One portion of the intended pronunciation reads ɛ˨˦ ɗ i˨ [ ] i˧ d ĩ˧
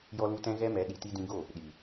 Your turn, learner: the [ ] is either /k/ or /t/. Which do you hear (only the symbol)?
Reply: t